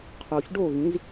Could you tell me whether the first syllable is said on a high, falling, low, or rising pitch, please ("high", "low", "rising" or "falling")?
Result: low